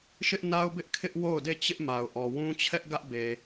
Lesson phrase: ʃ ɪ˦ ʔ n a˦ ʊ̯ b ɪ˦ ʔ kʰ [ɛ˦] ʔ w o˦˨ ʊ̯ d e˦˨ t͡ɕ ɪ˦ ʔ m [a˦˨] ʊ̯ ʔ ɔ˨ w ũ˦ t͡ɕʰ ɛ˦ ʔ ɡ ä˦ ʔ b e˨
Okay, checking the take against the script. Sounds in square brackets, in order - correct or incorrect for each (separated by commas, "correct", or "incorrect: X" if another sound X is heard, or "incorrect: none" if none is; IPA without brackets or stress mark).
incorrect: ɪ˦, incorrect: a˨